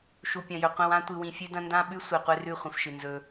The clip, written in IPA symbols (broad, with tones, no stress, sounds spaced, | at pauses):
ʃ u˨ pʲ ɐ̃˨ j ɵ˨ qʷ ĩ˨ w ã˦ tʷ ɨ˨ w ĩ˨ fʲ ʉ˦ d ɐ̃˦ n d ã˦ ɓ ʉ˦ sʷ e˨ qʷ e˦ r ʉ˦˨ χʷ ĩ˨ f ʃ ɨ˨ n z ɵ˦